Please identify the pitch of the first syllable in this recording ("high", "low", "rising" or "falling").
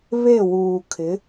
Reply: falling